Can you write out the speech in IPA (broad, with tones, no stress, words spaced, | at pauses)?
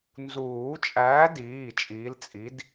nzuː˨˩˦t͡ʃʼæː˨˥diː˩˧˩ t͡ʃʼiː˨˥lt͡sʼi˨˥d